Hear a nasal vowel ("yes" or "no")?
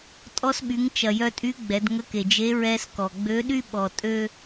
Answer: no